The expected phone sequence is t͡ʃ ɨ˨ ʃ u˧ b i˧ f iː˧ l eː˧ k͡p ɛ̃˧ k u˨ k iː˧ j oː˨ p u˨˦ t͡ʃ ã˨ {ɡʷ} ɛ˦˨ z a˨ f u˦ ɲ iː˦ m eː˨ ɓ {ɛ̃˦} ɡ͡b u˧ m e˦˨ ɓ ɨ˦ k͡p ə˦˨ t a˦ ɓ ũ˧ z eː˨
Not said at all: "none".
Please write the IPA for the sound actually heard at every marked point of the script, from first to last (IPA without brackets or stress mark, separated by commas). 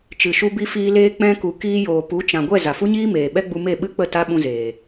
ɡʷ, ɛ˦